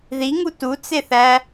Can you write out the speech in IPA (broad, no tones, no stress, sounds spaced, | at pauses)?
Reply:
ð i ŋ u t u t͡s e θ æ